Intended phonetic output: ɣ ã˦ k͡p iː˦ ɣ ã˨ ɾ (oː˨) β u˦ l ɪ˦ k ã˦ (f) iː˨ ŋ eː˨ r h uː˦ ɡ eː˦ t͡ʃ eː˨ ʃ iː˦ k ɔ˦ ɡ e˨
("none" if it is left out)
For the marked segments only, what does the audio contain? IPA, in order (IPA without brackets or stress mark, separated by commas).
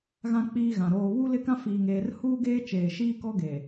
oː˨, f